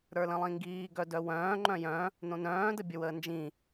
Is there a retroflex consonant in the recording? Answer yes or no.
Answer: no